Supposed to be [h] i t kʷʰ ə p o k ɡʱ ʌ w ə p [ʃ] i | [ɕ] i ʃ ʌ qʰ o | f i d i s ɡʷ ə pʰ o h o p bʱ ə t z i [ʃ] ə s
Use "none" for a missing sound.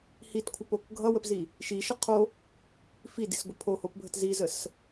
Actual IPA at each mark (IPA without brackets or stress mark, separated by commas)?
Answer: h, z, ʃ, z